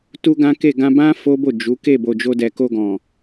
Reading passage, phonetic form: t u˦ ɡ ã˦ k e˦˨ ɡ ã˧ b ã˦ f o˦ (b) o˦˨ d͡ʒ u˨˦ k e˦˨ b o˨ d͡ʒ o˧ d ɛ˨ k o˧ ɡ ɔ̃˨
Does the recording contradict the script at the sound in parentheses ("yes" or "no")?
no